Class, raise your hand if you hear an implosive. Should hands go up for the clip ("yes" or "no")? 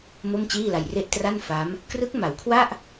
no